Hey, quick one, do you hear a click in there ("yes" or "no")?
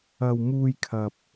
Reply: no